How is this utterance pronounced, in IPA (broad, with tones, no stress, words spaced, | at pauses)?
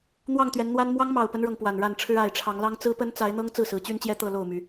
n̪wɑ˥˨ŋt̪ɥɛ˨˦nn̪wa˦n mwɑ˦ŋmɑ˨˩ʊ̯pə˦nɻɤ˩ŋ pwa˨˩nɻa˥˨nʈ͡ʂʰɻ̩˦ a˨˩ɪ̯ʈ͡ʂʰɑ˨˦ŋlɑ˦ŋ t͡sɹ̩˦pə˦n t͡sa˨˦ɪ̯n̪ɤ˦ŋ t͡sɹ̩˥˨sɹ̩˨˦t͡ɕy˦nt͡ɕjɛ˦ t̪ɤ˥˨ lo˥˨ʊ̯my˨˦